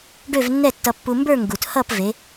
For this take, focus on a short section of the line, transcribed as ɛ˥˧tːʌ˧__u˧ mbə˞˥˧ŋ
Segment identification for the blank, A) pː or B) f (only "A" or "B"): A